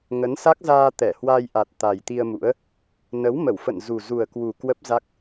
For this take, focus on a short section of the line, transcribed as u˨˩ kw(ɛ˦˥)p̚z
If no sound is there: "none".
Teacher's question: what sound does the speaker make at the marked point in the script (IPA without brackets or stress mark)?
ə˦˥